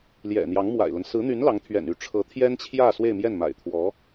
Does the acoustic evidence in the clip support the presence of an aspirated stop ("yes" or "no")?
yes